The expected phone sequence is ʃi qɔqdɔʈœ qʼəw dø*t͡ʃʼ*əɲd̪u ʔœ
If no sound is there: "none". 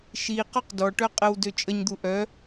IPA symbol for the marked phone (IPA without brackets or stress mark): t͡ʃʼ